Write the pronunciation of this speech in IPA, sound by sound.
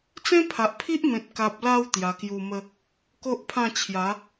t͡sẽ˦pʰa˨ʔpʰi˦ʔmẽ˨t̚ ka˨p̚la˧w t̪ja˧ kju˧mə˦ | ko˦ʔpʰã˥˧t͡ɕʰja˨˦

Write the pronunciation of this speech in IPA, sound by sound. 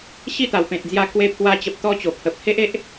ɕi˥˧t̪a˨˩wpẽ˨t̚d͡zja˧ kwe˧ pʰwa˧t͡ɕə˨p̚ t̪ɔ˦t͡ɕo˨˩pʰə˨p̚ he˦ʔe˦ʔ

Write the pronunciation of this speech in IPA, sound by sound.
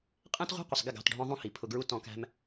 qʼæ̃˦tʁʷɑ̤˦qʷə˨sˤ ɡɪ˦˨ɡɑ̤˨tɖʱɔ̃˧ðˤũ˧ hi˨pʰʊ˧ɡɹu˦ tɔ̃˧kæ̤˦m

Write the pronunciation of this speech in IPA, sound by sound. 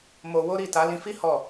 mo˧wo˦ɾi˦˨ ta˨˦lĩ˧fi˦ hɔ˦˨

